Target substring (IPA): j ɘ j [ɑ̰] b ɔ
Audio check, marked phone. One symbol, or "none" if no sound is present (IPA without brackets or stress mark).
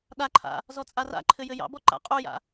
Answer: ɑ̰